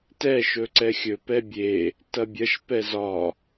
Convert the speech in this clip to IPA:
t ɛ ʃ ɵ ǀ ɛ xʲ ɵ p ɛ bʲ e | t ɐ bʲ ɐ ʃ p ɛ z ɒ

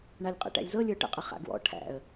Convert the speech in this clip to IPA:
ɳ a lʲ qʼ ɛ̰ ʈ æ̰ lʲ z ɤ lʲ ə˞ ʈ ə̰ qʼ ə χ a̰ ɡ w ɔ̰ ʈʰ æ̰ ə̯

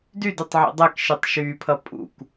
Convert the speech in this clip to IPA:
d y d ʉ tˤ ʕ ḭ dˤ ɛ k ʃ i tˤ ʃ yː pʰ ʌ pʼ ṵ k

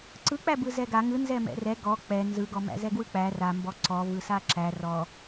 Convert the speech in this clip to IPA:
ǀ ɯ k͡p æ b ɯ z ɛ ɡ a ŋ ɯ n z ɛ m ɛ̰ r ɛ ɡ ɔ k͡p ɛ n z ɯ ɡ ɔ m æ̰ z ɛ ɡ w ɯ k͡p æ r a m b ɔ ǀ ɔ v ɯ s a ǁ æ r ɔ

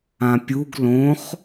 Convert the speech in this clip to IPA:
ã pʲ u ɡ l õ χ

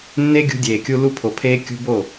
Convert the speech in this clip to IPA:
nː e˦ ɡʲ ṳ˧ dʲ eː˨ kʲ u˧ l u˧ pʰ o˨ pʰ eː˧ kʲ ṳ˧ b o˦˨

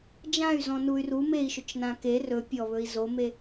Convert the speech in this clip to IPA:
d͡ʒ ã y̯ z ɔ̃ n u y̯ r u m e i̯ ʃ ʊ t͡ʃ n ã k e r ɵ pʲ ɔ β ɵ i̯ z o m e

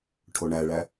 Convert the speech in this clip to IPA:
ʈʰ o ɳ æ ɭ æ

